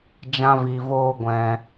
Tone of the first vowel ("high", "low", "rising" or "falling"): high